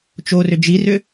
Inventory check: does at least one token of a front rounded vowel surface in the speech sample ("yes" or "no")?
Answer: yes